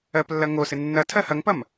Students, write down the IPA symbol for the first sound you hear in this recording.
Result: ɜ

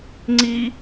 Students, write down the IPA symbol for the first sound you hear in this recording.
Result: ŋ͡ǀ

